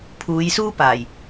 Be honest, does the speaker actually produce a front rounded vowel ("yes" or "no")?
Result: no